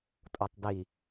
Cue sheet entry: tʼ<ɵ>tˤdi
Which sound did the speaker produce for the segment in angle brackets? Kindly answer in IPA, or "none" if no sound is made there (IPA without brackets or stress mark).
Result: o